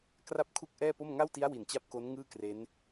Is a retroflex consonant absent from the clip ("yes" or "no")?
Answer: yes